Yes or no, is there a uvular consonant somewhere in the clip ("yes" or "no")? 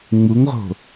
yes